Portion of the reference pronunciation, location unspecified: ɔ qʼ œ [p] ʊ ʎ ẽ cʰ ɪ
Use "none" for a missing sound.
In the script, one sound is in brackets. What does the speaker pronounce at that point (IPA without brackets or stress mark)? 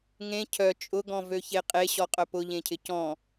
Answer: p